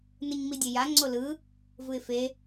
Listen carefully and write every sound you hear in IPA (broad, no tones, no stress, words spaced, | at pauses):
nɯɲmidʲeja ŋ͡ǀolɯ | vɯɪ̯fe